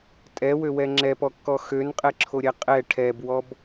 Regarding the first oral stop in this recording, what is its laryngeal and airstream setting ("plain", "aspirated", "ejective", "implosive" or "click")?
ejective